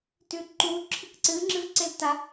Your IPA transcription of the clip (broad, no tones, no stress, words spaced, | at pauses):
tʉǃu ǁʰɨkǀɨ ŋ͡ǁɨvǀelta